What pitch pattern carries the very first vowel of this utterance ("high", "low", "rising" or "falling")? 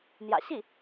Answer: low